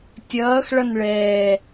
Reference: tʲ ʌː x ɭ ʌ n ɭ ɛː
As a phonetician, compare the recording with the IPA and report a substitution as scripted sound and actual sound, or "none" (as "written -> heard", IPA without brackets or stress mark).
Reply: none